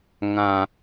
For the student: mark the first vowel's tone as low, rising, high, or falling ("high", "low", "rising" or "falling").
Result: low